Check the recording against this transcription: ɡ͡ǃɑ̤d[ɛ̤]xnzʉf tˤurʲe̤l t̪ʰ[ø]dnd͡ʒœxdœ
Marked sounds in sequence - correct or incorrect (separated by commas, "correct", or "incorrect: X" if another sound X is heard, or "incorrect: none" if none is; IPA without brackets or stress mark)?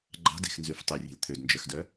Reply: incorrect: e̤, correct